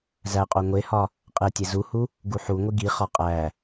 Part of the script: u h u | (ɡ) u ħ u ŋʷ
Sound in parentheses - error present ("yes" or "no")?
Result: no